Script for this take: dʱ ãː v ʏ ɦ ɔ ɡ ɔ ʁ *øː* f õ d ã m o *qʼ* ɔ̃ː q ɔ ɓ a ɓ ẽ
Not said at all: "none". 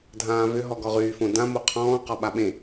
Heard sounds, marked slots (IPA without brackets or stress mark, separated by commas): yː, qʰ